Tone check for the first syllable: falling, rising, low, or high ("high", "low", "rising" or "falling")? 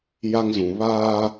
high